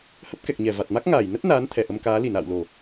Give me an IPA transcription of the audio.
hə˦˥p̚kɛ˨˩k̚ɲɛ˧˩ va˨˩t̚ma˦˥k̚ ŋaː˧˩j nə˦˥t̚ naː˨˦nt̪ʰɛ˧˩ ʔə˧mkaː˨˦ li˧˩na̰ː˧˨wlo˨˩

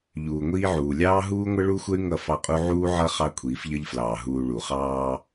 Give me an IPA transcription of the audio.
ʎuː˨ŋʷiː˦ʕuː˨ lʲɑː˦ɦuː˦ŋʷə˦ ɭu˦xʷə˦y̯ ŋʌ˦˨fɑ˦qʼu˦ ʕuː˦ʕʌ˦ χɑ˦kʷʰiː˨˦fʎʌ˦ʎflɑː˨ ɦuː˨ ɭu˨χɑː˦

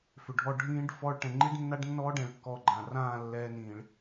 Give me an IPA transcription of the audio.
fʏ˨ɖʱɔ˧ ɖʱĩː˦ɖ fɔ˧ɭ ʈɛ̃˨ŋ͡ǃi˦ɖnːa˦ɖnːɔː˦ ɖɛ̃˧ɭ kːɔ˦˨ɡ͡ǃã˨ rãː˦˨ lːɛː˧nĩː˨ɭ

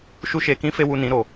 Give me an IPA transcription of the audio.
ʃu˦ʃe˧kĩ˦ fe˦wu˧nĩ˨˦ɾo˨

